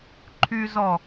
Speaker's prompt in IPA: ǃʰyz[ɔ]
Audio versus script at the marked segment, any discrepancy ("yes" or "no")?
no